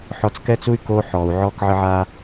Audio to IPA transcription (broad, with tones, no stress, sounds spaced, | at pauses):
ħ ɔ˧ t͡s k ɛ˦ t͡s u˦ y̯ k oː˦ ħ ɔː˨ u̯ ʕ ɔː˦ k ʕ ə˦ ʕ aː˦